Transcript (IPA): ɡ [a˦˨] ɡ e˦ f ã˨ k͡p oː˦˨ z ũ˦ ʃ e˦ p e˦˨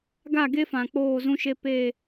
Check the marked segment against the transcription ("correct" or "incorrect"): correct